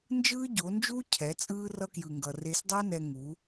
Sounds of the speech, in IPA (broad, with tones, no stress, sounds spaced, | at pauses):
n d͡ʒ ɯː˦ ɟ o˨˦ n d͡ʒ uː˦ cʰ ɛ˨˦ t͡sʼ ɯː˦ r ʌ˧ k j ɯ˨ ŋ ɡ ʌ˨ r e˧ s dˤ a˦ n ɛ˧ ŋ u˨˦